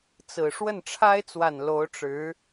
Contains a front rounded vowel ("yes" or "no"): no